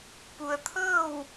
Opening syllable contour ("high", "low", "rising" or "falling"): low